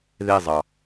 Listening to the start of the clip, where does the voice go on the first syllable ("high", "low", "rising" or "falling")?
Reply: falling